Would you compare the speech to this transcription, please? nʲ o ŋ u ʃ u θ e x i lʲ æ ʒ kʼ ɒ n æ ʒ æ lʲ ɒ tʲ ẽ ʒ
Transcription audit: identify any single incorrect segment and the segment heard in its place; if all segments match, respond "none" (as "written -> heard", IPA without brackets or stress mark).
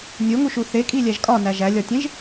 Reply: x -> kʼ